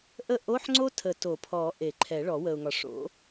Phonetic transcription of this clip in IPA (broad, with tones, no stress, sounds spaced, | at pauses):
ʔ ə˥ ʔ o˧˥˧ ħ ŋ͡ǀ o˥ tʰ ə˨˩˦ t o˨˩˦ pʰ ɔ˨˩˦ ʔ e˨˩˦ ǃʰ ɛ˨˩˦ ɭ ɔ˨˩˦ w ə˨ ʊ̯ ŋ ɒ˨ ʂ o̰˨˥